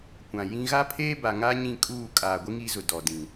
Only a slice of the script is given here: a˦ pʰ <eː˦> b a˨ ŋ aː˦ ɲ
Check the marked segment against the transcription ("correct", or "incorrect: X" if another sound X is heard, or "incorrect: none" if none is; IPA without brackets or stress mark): correct